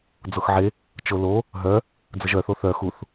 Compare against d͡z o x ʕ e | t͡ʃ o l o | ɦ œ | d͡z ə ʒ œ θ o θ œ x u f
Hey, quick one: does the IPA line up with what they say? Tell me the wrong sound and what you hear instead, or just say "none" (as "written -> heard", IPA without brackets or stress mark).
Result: f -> θ